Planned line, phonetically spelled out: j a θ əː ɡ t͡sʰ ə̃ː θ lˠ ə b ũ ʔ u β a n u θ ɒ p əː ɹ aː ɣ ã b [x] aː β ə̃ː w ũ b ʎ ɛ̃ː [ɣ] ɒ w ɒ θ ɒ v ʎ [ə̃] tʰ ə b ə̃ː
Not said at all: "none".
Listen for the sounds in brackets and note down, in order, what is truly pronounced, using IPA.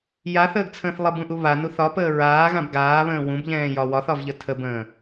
ɡ, j, ə

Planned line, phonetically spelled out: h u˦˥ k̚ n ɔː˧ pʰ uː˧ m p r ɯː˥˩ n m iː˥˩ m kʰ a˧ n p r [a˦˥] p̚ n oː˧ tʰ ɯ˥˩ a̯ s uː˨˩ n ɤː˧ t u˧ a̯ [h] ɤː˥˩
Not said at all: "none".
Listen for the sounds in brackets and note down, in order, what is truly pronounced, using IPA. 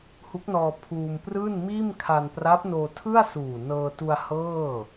a˦˥, h

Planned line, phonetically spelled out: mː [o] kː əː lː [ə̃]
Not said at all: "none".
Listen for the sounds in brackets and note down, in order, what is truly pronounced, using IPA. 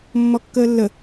ɔ, ə

